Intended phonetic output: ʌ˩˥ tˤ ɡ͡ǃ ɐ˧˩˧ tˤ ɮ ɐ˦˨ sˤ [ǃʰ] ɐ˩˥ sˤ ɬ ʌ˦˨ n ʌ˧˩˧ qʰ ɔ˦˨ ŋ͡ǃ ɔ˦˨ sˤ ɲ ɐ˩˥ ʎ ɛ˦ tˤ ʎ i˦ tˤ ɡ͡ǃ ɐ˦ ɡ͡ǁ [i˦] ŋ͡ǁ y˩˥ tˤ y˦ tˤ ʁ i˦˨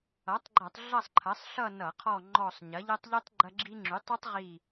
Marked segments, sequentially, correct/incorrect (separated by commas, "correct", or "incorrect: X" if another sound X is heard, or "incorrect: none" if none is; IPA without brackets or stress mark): correct, correct